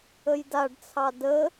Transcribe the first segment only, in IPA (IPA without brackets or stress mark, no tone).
ə